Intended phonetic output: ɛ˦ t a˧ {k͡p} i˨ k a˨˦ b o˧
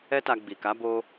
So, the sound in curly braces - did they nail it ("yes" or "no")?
no